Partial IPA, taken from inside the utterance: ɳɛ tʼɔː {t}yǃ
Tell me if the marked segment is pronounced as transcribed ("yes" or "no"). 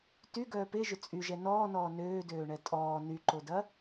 no